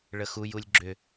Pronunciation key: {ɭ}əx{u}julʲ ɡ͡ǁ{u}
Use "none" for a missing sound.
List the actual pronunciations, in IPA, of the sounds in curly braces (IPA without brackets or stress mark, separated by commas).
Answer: ɭ, u, ʏ